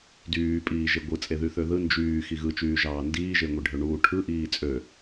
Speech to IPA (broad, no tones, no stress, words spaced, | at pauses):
dyːpʼiːʒe ɡʷɯ t͡sʼeðyθøðɯ nd͡ʒyː xiɣɯt͡ʃyːʒɑː ndiːʒeŋʷiɖʱø ɳuːʈʰɯ ʔiːt͡sʼø